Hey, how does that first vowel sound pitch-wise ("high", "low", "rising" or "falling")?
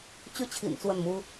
falling